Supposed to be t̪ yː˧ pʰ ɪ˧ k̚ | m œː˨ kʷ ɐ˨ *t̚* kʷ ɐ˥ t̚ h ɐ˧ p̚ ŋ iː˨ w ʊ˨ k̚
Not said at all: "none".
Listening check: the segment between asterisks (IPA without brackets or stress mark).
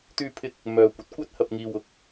t̚